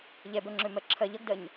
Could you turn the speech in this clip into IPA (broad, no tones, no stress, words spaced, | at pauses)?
ʎɛbɜŋ͡ǁømɜ ǁʰɜ ʎʌɡdɜɲ